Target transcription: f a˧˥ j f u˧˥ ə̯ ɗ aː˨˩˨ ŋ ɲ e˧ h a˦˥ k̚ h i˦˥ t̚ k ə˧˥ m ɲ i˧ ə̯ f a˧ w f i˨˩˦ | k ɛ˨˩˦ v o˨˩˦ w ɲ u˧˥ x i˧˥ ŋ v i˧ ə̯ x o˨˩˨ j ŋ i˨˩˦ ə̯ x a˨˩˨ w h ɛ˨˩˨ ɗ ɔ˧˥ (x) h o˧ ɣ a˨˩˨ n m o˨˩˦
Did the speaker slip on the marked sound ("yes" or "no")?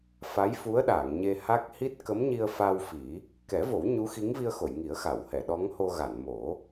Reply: yes